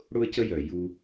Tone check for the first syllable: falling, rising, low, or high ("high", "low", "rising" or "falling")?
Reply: high